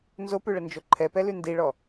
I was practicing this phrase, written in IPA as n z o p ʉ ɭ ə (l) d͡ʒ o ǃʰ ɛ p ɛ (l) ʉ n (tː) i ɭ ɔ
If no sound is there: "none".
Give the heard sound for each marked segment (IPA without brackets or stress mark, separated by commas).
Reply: n, l, d